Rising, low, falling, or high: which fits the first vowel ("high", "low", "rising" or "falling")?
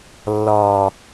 low